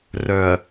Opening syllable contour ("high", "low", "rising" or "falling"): low